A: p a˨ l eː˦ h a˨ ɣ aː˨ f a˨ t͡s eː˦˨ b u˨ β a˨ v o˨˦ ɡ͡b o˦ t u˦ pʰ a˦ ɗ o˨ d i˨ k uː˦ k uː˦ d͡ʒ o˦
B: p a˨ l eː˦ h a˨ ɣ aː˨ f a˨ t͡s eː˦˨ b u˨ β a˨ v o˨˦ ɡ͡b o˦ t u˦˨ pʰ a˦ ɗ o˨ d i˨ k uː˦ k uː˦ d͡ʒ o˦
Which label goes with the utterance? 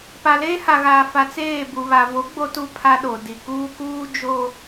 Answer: A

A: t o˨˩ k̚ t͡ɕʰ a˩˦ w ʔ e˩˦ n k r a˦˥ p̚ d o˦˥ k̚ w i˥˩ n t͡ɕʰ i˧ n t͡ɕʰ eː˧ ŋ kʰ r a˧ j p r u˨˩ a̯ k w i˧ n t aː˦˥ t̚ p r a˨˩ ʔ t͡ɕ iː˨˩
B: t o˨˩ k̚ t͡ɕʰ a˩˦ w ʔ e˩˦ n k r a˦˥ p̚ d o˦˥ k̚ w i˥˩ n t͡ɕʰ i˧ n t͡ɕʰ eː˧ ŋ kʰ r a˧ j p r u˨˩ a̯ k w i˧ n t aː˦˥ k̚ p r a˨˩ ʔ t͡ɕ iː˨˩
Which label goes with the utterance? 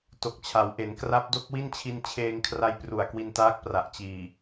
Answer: B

